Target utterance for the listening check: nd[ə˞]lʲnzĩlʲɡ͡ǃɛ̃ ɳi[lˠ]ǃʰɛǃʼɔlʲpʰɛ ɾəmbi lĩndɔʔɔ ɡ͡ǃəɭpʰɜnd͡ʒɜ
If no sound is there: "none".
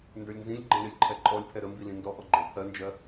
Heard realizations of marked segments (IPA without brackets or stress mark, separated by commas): ə˞, lʲ